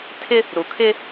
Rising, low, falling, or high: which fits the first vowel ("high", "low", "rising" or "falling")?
high